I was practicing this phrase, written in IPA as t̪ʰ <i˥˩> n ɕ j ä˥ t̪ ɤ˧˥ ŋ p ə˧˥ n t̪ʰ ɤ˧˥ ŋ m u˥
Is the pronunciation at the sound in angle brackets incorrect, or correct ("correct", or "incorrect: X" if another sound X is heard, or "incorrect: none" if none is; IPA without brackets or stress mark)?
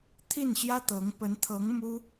correct